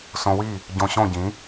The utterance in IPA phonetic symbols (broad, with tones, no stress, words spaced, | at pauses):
sõ˧wi˥˩ | ɟõ˧ɕõ˥˩ɟĩ˩˥